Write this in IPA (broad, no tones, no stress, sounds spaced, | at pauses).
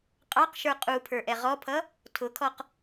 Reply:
qʼ ɑ q ʃ ə˞ qʼ u pʰ ə˞ ʔ ɛ ʁ ɔ pʰ ʌ | tʰ ʊ kʰ ɔ q